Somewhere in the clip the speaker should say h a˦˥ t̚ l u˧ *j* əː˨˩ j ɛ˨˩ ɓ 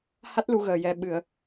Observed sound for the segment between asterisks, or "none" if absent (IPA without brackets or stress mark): ɣ